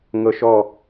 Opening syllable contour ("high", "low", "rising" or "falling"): high